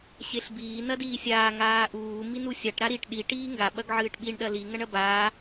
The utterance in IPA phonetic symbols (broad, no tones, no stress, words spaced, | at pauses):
ɕeɬbiː nɐdiːsʲaː ŋaːʔuː minusʲaʈ ɾaɾiʈ ɗi ʈiːŋɡa ɓɐɡʕɨːʈɓiɳ ɗɐli ŋɐɳɐbaː